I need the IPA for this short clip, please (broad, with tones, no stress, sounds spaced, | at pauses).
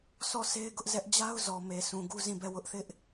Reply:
s ɔ˦˨ s e˦ ɪ̯ ɡ ʊ˦ ʔ z ɛ˦ ʔ d͡ʑ a˦ ʊ̯ z ɔ˨ m e˨ sʰ ũ˨ ɡ u˦ z ĩ˦˨ b ɛ˦˨ w ʊ˦ ʔ θ ɪ˦ ʔ